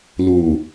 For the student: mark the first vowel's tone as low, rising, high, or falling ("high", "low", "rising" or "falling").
low